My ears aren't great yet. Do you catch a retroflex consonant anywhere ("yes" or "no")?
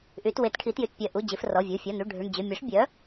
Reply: yes